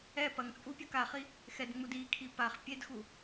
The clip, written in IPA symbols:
ɛ pɐŋt͡sʼupʲɐk aχi | xɛdŋ͡mud ikʰi paχ pʲedxu

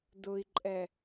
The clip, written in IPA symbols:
dʊi̯ǃʼɛ

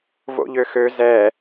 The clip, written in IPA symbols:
vo̰ʎøxø zɛ

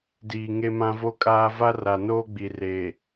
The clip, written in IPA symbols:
diː˨ ŋe˦mã˦ vo˦kʼaː˦ va˦ra˨noː˦ɡ͡bi˨ re˨

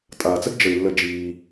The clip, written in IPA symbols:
tʼaː˩t͡sə˥ɡ d͡ʒə˩i̯lːə˨ d͡ʒiː˩

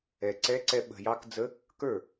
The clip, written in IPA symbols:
ɛ˨˩ǀɛ˧˥ǀɛ˧ ɓə̤˨˩jɑ˧˥kd͡zə˧˥ | kə˞˥˩

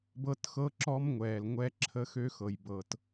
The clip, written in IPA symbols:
bɤ˦txɤ˦ ǁɔ˦mŋʷɛː˨lŋʷɛ˦ǁʰə˦ xø˦xɤ˨jbɤ˨t

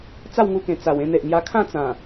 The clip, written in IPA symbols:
t͡sa˥˧wŋu˧kẽ˨˩ t͡sa˨˩wẽ˧n̪e˨ʔ ŋja˧kʰã˥˧t͡sã˨˩

